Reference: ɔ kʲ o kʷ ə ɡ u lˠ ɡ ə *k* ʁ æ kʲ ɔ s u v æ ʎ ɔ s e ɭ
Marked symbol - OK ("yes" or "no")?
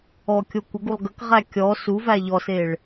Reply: yes